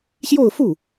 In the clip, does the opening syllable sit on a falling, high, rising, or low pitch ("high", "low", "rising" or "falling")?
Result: falling